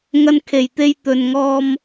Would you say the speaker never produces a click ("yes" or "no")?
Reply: yes